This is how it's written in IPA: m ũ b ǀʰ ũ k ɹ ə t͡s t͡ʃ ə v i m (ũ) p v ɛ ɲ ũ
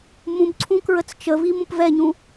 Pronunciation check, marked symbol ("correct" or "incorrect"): correct